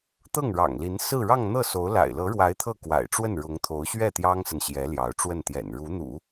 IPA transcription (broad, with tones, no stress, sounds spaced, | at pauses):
t̪ ɤ˥˩ ŋ ɻ ɑ̰˨˩ ŋ l i˧˥ n s ɹ̩˥˧ ɻ ɑ˥˧ ŋ n̪ ɤ˥˩ s o˧˥ ʊ̯ l a̰˨˩ ɪ̯ l ɤ˧˥ ɻ w a˧˥ ɪ̯ t̪ʰ ɤ˥˩ k w a̰˨˩ ɪ̯ ʈ͡ʂ w ə˥˩ n ɻ ʊ˧˥ ŋ t̪ʰ o˧˥ ʊ̯ ɕ ɥ ɛ˥˩ t̪ j ɑ˥ ŋ s ə˨ n ɕ j ɛ˧˥ l j ɑ˧˥ ʊ̯ ʈ͡ʂ w ə˥˩ n t̪ j ɛ̰˨˩ n ɻ u˧˥ n̪ ṵ˨˩˦